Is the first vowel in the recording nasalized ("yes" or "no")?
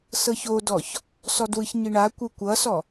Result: no